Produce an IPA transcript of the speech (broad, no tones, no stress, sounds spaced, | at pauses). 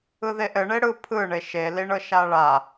ɯ ð e ʔ ɘ ɳ e ɽ ɯ pʰ ɯ ɳ e ʃ e l i ɳ ɤ ʃ a ɭ a